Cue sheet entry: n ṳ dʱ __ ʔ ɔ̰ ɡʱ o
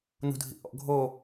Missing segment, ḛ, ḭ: ḭ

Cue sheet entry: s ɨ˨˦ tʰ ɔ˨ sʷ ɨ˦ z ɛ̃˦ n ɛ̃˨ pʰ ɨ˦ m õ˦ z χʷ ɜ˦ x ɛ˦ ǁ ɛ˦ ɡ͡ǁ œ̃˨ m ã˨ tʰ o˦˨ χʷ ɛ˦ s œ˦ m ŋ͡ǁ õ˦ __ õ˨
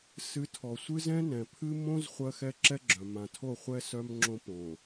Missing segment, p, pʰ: p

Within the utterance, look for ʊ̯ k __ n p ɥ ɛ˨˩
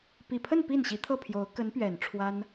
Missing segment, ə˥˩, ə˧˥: ə˧˥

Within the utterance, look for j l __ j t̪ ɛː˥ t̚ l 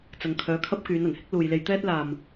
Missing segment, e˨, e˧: e˧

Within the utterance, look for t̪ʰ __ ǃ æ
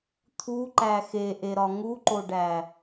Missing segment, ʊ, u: u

